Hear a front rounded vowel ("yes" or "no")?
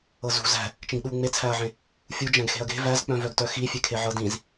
yes